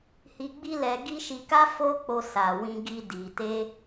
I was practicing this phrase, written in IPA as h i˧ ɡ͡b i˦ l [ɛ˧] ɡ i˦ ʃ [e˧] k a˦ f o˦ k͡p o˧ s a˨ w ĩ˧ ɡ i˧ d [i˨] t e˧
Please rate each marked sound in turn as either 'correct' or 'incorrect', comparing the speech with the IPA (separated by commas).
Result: correct, incorrect, correct